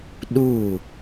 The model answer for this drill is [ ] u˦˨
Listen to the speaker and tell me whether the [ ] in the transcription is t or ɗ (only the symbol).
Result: ɗ